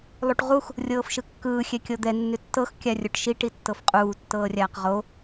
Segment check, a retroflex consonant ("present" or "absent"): present